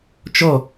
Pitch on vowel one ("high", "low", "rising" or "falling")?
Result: falling